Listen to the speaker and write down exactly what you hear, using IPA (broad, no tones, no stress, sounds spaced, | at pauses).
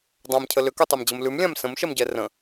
dˤ ã m cʰ ə l ʏ k ʉ tˤ a m d͡ʑ ə m l ʉ m lʲ ã m s ə̃ m ʃ ɛ m ɟ ɛ r ə̃